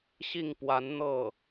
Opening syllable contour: falling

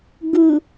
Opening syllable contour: low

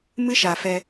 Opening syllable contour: high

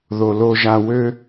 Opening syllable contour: low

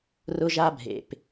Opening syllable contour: high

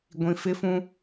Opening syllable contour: low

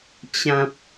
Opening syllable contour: low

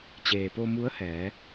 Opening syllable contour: low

